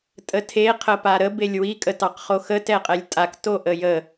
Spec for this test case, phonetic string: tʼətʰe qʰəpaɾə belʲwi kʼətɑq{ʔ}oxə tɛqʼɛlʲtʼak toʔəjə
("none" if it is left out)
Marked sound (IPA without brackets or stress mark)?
χ